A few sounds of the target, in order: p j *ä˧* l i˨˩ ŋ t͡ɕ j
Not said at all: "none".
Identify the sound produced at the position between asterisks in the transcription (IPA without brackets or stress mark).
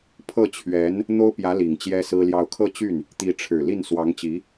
ä˧˥